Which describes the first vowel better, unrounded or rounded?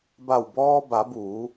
unrounded